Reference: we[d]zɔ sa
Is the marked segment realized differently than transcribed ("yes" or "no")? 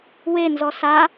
yes